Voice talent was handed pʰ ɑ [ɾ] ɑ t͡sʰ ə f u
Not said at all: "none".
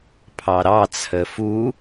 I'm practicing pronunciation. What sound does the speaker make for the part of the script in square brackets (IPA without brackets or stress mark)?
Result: ɾ